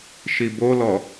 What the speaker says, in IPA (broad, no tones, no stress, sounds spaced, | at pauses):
ʃ i b o l ɔ